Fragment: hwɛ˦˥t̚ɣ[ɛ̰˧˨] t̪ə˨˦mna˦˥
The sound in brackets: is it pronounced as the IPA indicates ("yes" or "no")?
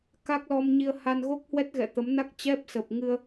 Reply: yes